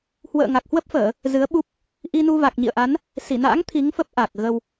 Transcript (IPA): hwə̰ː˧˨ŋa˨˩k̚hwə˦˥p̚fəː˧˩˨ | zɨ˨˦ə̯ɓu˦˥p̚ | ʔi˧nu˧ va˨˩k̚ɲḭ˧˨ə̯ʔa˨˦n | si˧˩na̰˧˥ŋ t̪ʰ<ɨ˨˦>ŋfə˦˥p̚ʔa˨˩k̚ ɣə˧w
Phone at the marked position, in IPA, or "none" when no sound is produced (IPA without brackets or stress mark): i˨˦